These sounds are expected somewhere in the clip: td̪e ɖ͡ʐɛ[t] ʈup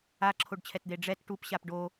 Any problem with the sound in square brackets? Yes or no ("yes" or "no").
no